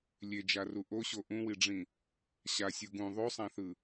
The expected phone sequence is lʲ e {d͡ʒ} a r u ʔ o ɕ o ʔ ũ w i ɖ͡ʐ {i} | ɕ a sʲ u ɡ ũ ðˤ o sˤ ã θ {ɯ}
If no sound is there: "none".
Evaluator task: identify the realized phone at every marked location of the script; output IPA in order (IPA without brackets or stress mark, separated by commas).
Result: d͡ʒ, ĩ, ɯ